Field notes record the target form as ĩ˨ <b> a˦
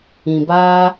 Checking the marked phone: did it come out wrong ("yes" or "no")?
no